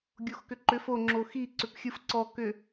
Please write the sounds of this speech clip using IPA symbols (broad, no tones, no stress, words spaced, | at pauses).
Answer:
ɡʲoxkʏǃʏf o ŋ͡ǁoxi ǀʏpxʲɯfǀɔ kʏ